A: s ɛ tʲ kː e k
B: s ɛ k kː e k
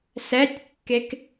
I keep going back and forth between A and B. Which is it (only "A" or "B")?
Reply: A